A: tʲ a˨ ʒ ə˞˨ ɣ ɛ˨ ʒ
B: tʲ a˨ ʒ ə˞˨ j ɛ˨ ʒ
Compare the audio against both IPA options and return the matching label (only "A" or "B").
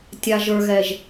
A